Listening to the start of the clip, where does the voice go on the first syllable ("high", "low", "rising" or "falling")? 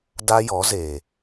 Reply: high